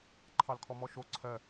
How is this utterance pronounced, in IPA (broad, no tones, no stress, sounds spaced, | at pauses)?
ǃʰ ɑ l kʰ ɔ m ɔ ʃ o ǀʰ ɜ